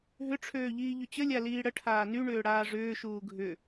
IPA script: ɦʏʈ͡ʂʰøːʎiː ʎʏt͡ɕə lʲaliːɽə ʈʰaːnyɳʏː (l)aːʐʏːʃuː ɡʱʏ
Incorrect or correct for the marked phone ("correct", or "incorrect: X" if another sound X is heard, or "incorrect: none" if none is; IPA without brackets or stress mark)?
incorrect: ɽ